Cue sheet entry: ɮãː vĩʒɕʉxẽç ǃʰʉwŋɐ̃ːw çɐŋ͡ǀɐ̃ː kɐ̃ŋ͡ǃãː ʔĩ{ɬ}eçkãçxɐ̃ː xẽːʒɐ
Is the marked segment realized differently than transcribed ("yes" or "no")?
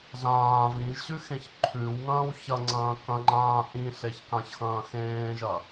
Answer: no